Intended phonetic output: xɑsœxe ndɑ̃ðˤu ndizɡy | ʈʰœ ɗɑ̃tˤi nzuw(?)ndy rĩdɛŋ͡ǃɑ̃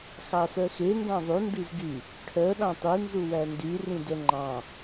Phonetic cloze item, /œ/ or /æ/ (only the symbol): æ